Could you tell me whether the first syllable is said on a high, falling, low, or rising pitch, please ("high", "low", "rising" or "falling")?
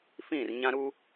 falling